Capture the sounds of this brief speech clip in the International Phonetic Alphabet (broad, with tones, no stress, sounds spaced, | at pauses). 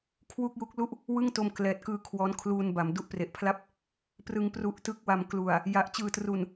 kʰ w u˥˩ k̚ j u˦˥ k̚ l u˦˥ ʔ | w ɯ˥˩ ŋ t o˧ m k l ɛː˨˩ t̚ k ɯː˧ kʰ w ɔː˦˥ n kʰ l uː˧ n b a˩˦ m d u˦˥ ʔ p r e˨˩ ʔ pʰ l a˥˩ p̚ | p r ɯ˧ ŋ p r u˦˥ ʔ t ɯ˥˩ k̚ w a˧ m k l u˨˩ a̯ | j a˨˩ ʔ t͡ɕ ɯː˨˩ t r u˨˩ n